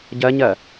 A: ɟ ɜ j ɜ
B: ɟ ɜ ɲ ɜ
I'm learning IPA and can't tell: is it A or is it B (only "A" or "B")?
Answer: B